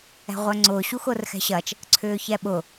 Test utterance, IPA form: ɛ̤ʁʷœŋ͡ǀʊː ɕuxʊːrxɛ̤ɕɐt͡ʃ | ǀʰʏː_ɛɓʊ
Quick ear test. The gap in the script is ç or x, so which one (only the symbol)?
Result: ç